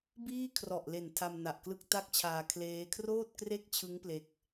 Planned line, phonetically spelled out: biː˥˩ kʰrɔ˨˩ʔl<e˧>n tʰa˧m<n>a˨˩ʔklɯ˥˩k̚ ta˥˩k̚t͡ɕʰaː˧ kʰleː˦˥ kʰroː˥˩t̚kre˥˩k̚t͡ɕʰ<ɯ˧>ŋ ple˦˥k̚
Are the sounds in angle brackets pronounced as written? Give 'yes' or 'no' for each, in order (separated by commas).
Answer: no, yes, no